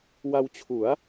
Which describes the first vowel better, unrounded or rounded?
unrounded